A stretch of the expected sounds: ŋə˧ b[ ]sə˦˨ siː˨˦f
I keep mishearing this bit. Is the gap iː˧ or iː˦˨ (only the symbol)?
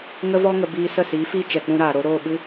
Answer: iː˧